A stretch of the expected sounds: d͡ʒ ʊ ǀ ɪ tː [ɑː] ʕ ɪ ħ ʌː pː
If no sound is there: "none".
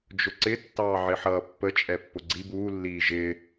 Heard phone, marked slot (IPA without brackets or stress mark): ɑː